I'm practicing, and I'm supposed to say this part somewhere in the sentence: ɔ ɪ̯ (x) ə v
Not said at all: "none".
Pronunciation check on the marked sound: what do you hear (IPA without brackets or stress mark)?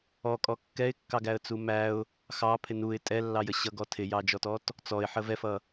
ħ